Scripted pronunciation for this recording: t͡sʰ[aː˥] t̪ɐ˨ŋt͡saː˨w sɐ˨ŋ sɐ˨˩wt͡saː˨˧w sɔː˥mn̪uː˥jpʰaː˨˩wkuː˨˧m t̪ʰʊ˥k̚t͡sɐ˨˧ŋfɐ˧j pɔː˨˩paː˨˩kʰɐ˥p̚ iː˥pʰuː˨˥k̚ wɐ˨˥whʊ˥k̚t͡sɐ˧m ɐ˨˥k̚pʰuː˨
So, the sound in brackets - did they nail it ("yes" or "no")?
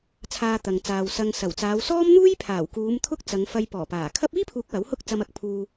no